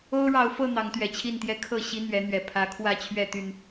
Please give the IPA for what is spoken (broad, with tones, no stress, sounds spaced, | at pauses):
o˦ ʊ̯ ɻ ɑ˨˦ ʊ̯ f ɤ˥˨ n̪ ɑ˨˦ ŋ t̪ ɥ ɛ˨˩ t͡ɕʰ i˥˨ n t̪ j ɛ˦ kʰ ɤ˥˨ ɕ i˦ n̪ ɥ ɛ˨˦ n̪ ɥ ɛ˨˩ pʰ ä˨˦ kʰ w ä˥˨ t͡ɕʰ ɥ ɛ˥˨ t̪ y˨˩ n